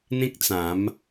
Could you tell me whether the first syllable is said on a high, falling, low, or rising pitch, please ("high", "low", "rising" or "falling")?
high